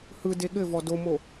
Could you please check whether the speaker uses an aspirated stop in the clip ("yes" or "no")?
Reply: no